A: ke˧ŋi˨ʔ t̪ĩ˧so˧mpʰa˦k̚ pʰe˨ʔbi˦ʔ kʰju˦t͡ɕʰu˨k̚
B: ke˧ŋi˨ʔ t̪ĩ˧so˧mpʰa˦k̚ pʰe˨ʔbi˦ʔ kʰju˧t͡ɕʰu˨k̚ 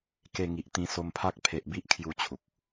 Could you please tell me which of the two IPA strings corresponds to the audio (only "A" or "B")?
B